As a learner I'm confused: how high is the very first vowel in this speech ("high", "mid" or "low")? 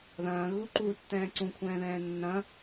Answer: low